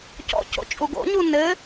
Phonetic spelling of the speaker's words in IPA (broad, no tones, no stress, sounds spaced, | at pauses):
c ɔ̰ c o̰ t͡ʃʼ u ɡ o̰ ɲ u n ɘ